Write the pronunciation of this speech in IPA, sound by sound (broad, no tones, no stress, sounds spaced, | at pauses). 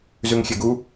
z ʉ ŋ xʲ e ɡ u